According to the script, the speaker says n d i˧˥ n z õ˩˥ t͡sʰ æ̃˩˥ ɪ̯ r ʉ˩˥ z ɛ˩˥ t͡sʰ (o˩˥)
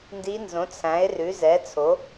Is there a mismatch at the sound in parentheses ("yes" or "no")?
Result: no